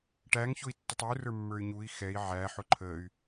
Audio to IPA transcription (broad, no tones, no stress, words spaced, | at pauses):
ʈæŋçʊi̯tːʊtˤ urə˞ mːə˞y̯ɲui̯ xɛi̯ ʕæ ħʊǃʰəy̯